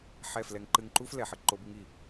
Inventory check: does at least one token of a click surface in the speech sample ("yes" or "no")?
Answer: yes